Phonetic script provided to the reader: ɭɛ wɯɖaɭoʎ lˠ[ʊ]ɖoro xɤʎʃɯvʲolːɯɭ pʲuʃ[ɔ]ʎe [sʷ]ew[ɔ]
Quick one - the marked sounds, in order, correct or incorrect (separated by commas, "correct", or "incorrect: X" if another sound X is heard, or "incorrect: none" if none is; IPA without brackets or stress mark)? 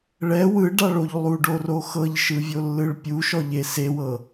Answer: incorrect: u, correct, incorrect: s, incorrect: ɤ